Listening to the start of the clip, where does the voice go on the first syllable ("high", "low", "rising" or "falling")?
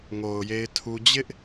low